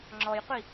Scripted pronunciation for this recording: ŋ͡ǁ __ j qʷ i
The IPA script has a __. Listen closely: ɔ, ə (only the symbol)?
ɔ